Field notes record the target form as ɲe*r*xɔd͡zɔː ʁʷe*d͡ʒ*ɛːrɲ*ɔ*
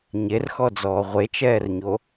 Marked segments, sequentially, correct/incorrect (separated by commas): correct, incorrect, incorrect